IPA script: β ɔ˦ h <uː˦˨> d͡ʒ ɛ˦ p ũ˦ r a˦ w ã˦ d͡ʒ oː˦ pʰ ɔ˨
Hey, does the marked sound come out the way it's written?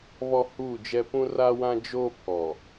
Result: yes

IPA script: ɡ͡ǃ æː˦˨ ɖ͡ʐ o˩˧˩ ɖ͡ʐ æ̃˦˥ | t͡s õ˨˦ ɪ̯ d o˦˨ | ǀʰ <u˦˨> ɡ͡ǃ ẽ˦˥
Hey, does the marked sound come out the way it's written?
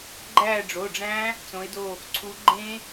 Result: no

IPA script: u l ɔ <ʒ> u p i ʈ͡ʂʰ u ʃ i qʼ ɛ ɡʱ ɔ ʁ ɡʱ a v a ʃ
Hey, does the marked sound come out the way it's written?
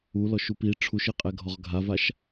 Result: no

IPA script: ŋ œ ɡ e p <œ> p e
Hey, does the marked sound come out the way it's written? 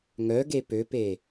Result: no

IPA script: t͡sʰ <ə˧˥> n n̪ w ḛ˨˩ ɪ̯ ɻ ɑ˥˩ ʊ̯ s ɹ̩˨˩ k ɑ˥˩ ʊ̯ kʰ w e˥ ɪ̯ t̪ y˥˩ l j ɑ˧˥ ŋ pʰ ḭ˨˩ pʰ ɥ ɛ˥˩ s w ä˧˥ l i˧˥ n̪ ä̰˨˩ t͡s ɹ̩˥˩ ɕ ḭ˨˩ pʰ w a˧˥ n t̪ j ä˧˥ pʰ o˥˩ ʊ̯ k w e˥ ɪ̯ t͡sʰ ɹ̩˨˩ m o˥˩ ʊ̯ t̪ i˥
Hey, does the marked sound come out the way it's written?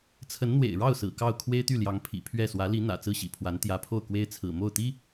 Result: yes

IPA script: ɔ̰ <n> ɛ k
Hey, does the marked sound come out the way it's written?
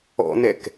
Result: yes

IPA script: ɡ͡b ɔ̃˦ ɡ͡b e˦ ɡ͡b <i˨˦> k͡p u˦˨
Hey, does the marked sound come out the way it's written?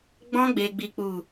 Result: no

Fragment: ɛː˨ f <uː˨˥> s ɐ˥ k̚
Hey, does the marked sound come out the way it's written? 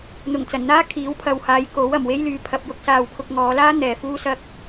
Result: no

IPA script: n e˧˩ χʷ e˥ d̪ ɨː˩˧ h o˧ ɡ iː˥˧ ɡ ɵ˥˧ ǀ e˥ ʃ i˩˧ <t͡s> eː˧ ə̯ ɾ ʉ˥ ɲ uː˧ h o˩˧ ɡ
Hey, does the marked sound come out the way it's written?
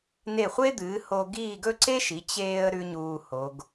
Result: no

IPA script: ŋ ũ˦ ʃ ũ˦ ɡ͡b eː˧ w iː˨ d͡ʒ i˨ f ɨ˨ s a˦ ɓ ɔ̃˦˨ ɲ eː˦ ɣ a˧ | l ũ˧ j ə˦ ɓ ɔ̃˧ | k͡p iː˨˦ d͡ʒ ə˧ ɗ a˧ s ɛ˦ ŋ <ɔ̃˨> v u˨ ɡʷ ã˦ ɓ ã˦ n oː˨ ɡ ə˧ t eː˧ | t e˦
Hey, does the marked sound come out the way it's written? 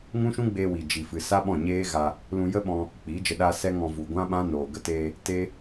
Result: no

